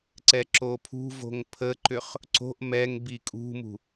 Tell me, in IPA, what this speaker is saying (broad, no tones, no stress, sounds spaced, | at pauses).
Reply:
ǀ ɛ ǁ o pʰ ṳ v o̤ ŋ pʰ ə ǃ ʏ χ | ǀ o̤ ʔ m ɛ ŋ b i kʼ ṳ m ṳ